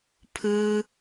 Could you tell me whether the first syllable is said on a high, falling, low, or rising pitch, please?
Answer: high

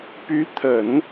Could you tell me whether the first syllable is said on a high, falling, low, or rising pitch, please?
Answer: rising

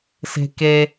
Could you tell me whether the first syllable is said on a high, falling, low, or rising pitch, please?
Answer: high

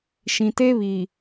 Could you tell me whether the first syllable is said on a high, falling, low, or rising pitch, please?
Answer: low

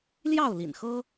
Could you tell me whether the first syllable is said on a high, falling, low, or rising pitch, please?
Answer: falling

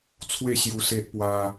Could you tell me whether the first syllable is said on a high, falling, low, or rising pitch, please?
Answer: falling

